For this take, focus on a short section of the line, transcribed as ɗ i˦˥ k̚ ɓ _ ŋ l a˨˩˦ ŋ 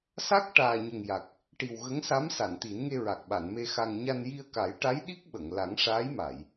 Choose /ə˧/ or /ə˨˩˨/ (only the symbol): ə˨˩˨